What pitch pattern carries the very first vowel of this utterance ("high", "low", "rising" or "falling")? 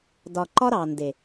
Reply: low